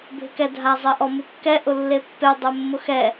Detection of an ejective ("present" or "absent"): absent